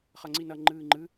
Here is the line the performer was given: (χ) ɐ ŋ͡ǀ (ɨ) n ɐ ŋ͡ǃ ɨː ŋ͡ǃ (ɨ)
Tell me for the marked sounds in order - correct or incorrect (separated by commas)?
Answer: correct, incorrect, correct